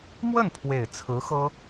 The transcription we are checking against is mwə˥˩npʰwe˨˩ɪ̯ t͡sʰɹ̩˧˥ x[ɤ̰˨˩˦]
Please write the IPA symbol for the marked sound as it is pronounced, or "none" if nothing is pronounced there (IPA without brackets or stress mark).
ɤ˥